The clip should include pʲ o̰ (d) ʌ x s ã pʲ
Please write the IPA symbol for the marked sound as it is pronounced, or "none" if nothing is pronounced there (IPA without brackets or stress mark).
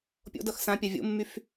d